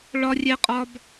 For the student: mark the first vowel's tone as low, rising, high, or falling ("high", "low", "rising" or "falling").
high